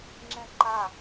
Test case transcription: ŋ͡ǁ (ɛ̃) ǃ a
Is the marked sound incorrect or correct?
correct